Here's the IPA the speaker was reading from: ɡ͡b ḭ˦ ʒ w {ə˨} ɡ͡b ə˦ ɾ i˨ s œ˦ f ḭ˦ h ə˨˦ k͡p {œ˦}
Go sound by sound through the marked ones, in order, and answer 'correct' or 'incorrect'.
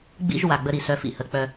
incorrect: a˨, correct

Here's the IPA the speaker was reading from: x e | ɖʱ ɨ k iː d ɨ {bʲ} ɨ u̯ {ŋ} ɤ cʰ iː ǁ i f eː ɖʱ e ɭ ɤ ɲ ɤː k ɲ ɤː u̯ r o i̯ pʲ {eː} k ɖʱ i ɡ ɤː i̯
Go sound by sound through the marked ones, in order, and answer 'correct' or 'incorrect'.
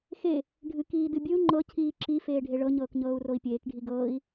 correct, incorrect: ŋ͡ǃ, correct

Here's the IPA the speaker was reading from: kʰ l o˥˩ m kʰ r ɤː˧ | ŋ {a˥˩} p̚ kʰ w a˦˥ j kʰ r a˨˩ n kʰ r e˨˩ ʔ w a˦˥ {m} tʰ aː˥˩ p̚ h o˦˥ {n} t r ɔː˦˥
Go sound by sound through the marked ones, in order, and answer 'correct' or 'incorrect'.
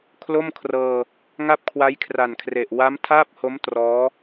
correct, correct, incorrect: m

